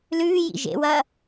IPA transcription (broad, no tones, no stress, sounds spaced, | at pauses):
l ʉː j ḭ ʒ ḛ w ɐː